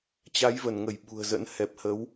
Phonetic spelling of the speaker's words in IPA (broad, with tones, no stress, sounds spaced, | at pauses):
t͡ɕ a˨˦ j v ə˧˩ n ŋ ə˧˩ j ɓ ṳ˨˩ ə̯ z ə̰˧˥ n h ɛ˨˩ p̚ h ə˨˦ w